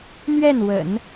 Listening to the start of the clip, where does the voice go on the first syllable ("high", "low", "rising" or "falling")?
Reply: falling